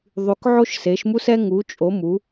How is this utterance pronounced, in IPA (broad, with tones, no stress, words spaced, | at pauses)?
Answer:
ðˤy˩˧k ʕo˧ʃse˩˧ʃmu˧sɛ˧ ŋu˩˧t͡ʃʼo˩˧ mu˩˧